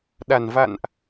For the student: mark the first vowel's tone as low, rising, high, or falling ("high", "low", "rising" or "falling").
low